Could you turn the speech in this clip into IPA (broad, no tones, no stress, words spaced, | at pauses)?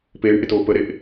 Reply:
peːɳʔɪtoː pəɾeʔ